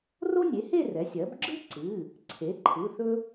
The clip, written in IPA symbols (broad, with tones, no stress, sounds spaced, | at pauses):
r o˥ nʲ e˩˥ h e˥˧ r ɛ˩˥ sʲ ɜ˩˥ b ɡ͡ǁ ɯ˥ ǀ ɨ˩˧˩ | ǀʰ e˩˥ ǃʰ ɯ˩˧˩ θ ɵ˥